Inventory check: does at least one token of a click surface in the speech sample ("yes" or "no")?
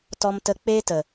no